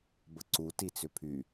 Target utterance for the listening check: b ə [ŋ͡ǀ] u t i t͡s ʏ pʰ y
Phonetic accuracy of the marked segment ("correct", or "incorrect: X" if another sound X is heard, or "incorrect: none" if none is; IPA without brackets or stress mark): incorrect: ǀ